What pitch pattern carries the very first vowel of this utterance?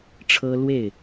high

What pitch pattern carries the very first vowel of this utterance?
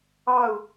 falling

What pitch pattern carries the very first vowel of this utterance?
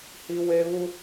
high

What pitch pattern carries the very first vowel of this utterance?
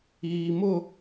low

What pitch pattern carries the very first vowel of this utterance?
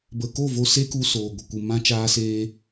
low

